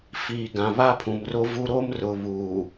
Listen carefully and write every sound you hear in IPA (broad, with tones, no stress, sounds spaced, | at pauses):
f iː˨ ɡ ã˨ β a˦ pʰ ũ˨ m r o˦ v u˦ ɾ o˦ m r ʊ˨ β uː˨